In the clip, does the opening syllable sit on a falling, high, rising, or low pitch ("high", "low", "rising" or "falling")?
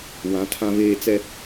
rising